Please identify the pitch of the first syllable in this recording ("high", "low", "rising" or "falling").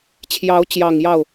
rising